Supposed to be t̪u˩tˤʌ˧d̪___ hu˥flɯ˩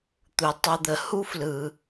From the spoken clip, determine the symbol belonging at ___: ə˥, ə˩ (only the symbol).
ə˩